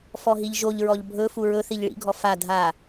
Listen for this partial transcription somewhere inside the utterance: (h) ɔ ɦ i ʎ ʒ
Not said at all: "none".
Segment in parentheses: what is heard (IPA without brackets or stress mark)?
f